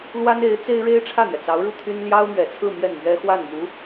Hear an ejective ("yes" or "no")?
no